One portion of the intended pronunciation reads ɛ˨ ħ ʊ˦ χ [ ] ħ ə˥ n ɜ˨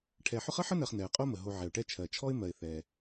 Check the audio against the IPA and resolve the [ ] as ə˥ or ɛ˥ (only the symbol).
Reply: ə˥